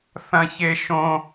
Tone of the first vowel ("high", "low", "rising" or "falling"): high